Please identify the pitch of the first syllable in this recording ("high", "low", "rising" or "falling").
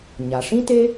low